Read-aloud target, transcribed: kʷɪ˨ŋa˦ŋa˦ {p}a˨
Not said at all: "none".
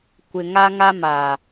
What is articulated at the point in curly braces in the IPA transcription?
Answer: m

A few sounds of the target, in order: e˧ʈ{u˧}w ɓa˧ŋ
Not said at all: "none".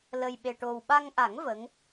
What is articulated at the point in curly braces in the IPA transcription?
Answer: o˧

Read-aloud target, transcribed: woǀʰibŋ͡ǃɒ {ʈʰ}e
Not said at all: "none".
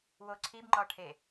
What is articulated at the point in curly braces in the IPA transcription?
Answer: ʈʰ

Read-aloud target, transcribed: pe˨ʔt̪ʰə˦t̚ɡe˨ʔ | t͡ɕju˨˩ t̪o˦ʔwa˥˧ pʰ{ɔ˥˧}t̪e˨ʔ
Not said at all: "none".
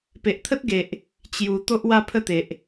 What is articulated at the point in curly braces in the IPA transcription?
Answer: ə˥˧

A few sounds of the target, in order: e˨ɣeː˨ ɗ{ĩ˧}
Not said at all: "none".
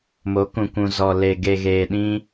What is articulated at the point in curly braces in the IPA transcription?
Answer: ĩ˦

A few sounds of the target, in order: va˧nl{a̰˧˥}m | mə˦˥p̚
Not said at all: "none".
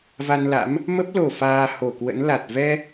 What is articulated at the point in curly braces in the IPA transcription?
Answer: a̰˧˥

